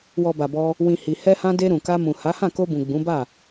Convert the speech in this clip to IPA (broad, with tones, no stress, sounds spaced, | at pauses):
w ɔ˨ b a˨ b ɔ˧ | w ĩ˨ h i˨ h ɛ˧ h ã˧ d e˧ ɾ ũ˨ k a˧ m ũ˨ h a˨˦ h ã˦˨ k o˧ b ũ˨ ɡ͡b ũ˨˦ b a˦˨